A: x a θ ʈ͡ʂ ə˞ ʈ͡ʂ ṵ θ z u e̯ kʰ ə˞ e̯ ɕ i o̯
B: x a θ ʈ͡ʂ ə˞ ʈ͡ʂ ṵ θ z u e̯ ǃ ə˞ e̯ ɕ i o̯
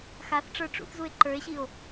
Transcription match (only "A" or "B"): B